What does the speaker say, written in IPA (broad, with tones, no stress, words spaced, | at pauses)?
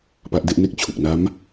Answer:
pa˦˥ʔde˥˩ʔne˥˩k̚ t͡ɕʰu˨˩k̚na˦˥m